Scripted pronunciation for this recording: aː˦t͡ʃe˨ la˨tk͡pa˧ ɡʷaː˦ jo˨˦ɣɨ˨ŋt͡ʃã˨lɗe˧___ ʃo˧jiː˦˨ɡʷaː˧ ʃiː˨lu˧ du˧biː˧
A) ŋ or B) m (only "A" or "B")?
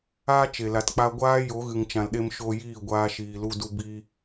B